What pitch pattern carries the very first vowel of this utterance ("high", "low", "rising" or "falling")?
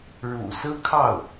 low